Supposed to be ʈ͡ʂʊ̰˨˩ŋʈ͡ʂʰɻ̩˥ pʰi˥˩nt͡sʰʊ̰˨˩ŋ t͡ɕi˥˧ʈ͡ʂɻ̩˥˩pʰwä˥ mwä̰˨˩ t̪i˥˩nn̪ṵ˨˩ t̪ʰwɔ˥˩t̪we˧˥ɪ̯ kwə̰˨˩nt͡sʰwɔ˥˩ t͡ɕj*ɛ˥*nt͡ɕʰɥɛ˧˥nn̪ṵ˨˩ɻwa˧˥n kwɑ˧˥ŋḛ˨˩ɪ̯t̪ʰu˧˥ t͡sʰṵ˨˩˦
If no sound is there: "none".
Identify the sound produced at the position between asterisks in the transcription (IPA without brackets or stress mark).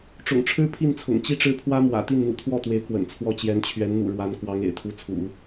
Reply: ɛ˧˥